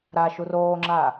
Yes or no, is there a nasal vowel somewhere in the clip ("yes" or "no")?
no